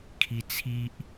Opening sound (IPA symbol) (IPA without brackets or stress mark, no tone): kʰ